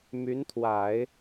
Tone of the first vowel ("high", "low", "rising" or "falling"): rising